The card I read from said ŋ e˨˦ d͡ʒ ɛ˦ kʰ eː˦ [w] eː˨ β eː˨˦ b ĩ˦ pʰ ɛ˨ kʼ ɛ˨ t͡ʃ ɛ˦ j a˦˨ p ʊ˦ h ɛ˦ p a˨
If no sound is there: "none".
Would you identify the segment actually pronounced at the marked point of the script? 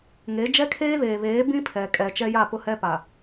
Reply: β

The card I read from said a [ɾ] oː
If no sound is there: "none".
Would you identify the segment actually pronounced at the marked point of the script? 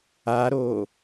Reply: ɾ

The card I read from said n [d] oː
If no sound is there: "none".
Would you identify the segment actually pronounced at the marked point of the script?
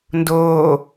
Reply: d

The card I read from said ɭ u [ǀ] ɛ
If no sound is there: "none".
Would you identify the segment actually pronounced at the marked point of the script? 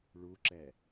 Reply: ǁ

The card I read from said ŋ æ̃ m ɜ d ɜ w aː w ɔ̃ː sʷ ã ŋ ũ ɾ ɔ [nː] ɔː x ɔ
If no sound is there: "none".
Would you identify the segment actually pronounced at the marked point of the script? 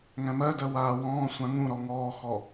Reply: ŋ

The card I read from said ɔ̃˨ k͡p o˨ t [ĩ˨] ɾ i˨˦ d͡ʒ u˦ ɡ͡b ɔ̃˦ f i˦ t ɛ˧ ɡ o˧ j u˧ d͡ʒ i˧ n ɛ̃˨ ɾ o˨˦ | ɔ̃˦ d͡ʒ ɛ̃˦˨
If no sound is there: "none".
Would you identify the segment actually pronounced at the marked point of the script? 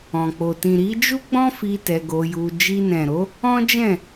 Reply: ĩ˨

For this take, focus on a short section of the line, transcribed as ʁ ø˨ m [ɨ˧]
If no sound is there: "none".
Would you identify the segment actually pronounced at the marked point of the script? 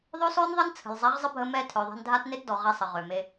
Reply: e˧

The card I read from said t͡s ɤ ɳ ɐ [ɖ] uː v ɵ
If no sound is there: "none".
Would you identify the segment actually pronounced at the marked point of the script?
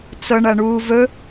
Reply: ɳ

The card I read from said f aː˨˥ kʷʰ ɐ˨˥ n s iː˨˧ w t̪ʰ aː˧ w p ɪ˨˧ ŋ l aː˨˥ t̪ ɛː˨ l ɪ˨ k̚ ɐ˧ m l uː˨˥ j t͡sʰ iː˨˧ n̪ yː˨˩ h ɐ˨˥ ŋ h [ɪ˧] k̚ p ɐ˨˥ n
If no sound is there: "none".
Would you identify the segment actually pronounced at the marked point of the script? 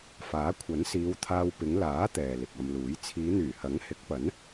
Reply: ɪ˨˥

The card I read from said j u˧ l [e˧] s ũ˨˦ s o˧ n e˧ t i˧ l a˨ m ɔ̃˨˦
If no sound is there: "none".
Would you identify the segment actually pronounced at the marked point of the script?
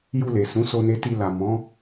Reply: e˨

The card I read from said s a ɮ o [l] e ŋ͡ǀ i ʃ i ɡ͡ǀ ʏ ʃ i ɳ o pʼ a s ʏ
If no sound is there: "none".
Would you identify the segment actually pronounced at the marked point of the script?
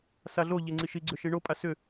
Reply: ʎ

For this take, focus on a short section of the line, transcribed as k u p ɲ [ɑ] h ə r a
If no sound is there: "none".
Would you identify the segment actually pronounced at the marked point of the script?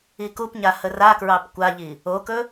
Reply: a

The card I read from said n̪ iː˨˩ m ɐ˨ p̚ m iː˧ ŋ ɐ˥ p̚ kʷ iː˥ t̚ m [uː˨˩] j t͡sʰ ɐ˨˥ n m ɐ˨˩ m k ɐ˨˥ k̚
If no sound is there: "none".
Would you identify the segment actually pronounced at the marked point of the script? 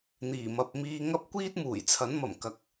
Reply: uː˨˩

